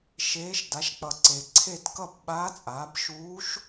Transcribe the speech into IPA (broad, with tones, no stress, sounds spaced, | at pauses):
ʃ eː˧˥ ʃ d a˩˥ ʃ k͡p ʌ˨˩ ǀ e˨˩ ǀʰ e˥˨ t k ʌ˥˨ b ɓ aː˧˥ t͡sʼ aː˩˥ b ʃ uː˧˥ ʃ